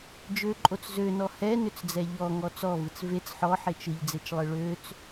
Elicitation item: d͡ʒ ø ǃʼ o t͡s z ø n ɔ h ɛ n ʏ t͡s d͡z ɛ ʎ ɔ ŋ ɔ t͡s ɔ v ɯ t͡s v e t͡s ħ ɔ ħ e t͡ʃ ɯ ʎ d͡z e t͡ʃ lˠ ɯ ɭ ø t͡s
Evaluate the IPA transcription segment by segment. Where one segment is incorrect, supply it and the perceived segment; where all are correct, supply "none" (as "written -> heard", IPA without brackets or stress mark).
none